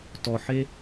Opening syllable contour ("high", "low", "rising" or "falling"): low